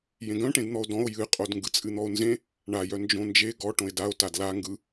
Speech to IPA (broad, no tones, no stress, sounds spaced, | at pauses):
j ẽ ɡ œ̃ ʈ ẽ d n̪ ɔ o̯ d ɔ̃ o̯ j ɨ qʼ o d ŋ ɡ ɯ t͡sʼ ɨ n̪ ɔ o̯ n z ẽ | ɳ a j œ n d͡ʒ õ n d͡ʒ e ɡ ɔ ʈ õ e̯ d a o̯ t a d l a ŋ ɡ ɯ